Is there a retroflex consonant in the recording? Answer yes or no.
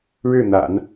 yes